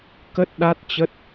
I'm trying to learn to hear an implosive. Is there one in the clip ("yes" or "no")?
yes